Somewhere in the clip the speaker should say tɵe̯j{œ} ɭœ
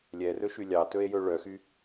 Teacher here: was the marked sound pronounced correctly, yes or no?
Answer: no